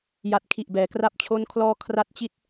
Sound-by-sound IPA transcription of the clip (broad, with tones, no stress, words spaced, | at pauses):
ja˨˩t̚kʰi˨˩ʔ bɛː˩˦kra˥˩p̚t͡ɕʰo˥˩nkʰlɔː˥˩ kʰra˦˥t̚t͡ɕi˦˥t̚